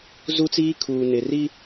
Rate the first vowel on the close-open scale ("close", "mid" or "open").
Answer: close